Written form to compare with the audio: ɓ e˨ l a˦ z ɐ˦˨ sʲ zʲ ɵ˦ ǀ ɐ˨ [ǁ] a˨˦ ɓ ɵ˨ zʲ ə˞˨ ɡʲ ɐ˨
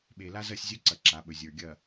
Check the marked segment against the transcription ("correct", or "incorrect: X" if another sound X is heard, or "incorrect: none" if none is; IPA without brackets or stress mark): correct